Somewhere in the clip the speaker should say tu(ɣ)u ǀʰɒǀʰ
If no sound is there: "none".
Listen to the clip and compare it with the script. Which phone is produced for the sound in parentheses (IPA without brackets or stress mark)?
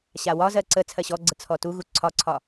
ɣ